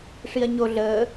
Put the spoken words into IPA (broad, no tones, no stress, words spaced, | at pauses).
ʂiɐ̯ɲo ɮəː